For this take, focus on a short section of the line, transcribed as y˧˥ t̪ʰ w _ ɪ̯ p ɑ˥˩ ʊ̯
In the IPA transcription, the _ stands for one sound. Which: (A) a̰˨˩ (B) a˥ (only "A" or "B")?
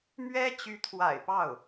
A